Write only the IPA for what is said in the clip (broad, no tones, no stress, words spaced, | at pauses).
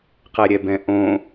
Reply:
qɛɾʲɛbɛ̃ʔõ